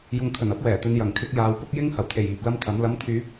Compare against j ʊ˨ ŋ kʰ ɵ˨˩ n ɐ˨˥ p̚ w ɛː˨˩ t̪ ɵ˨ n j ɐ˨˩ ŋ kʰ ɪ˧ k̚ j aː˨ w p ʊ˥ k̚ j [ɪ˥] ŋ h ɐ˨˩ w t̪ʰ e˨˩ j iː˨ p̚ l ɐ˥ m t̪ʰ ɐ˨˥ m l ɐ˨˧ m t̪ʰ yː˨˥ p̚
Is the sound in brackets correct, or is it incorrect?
correct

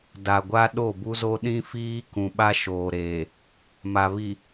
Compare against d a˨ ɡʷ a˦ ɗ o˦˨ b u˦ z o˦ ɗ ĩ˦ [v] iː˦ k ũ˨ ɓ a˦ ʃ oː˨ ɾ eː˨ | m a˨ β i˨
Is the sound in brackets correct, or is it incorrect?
incorrect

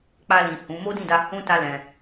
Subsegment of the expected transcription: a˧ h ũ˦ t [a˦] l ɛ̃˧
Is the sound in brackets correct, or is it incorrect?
correct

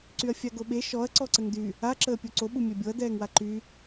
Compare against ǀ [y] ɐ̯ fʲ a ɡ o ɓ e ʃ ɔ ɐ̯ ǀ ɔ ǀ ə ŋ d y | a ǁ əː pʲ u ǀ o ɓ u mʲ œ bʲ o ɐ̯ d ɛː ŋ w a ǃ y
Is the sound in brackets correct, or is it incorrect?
correct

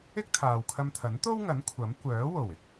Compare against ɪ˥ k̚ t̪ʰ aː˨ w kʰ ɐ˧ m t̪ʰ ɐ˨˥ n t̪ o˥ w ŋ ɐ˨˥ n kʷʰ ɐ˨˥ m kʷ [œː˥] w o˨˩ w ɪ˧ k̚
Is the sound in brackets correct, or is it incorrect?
incorrect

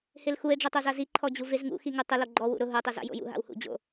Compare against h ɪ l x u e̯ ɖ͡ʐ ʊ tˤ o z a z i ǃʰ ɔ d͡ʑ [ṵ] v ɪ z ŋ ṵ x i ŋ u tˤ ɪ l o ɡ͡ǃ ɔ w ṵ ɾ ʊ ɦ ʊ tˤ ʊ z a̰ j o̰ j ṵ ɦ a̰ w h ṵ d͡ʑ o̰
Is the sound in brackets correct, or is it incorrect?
incorrect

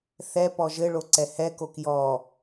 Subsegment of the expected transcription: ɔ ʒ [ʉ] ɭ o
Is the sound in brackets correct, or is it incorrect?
incorrect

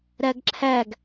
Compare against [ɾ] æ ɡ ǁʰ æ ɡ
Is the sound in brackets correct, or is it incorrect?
correct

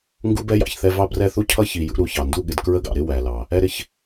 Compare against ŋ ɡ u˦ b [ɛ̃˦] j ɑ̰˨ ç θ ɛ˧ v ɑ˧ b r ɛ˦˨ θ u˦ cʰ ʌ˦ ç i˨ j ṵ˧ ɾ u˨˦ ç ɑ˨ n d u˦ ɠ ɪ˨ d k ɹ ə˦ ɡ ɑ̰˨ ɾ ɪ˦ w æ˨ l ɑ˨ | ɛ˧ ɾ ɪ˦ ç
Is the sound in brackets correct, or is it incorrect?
incorrect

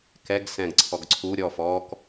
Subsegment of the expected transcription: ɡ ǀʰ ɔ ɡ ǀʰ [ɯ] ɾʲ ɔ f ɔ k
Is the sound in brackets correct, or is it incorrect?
incorrect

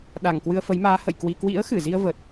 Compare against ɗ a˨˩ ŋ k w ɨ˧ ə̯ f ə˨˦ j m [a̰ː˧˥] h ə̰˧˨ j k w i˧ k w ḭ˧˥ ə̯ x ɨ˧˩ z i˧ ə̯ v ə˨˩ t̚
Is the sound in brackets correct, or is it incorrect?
incorrect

